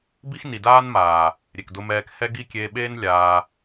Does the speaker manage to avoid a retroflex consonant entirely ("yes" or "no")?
yes